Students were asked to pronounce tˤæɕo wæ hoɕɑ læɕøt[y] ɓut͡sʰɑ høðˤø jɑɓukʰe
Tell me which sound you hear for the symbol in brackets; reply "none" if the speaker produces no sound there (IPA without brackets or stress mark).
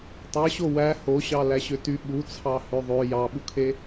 y